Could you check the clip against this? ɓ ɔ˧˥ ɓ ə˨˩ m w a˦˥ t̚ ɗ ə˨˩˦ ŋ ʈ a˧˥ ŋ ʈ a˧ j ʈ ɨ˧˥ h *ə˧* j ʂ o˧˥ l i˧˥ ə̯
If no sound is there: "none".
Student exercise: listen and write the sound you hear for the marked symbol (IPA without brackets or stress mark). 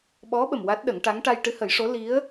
ə˨˩˦